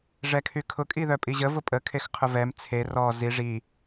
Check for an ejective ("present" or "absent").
present